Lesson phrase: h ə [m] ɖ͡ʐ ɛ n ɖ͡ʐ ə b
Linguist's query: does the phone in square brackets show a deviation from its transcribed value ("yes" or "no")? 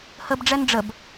yes